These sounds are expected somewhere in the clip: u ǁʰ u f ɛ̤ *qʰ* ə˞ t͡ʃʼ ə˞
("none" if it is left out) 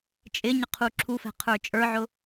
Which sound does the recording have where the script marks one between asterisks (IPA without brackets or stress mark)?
qʰ